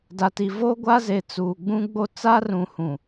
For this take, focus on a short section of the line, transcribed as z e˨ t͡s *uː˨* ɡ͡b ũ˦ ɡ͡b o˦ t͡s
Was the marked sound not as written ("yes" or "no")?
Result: no